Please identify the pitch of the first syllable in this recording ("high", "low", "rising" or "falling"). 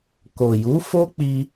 low